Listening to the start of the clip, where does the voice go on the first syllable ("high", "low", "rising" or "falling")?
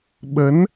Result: rising